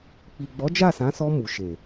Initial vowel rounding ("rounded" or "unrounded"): unrounded